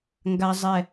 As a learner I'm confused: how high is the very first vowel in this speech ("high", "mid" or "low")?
low